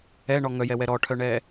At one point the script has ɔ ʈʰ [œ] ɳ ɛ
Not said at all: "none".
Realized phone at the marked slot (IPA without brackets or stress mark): œ